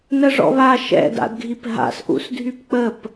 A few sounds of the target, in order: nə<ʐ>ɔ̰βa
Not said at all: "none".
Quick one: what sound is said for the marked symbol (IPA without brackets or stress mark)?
ʐ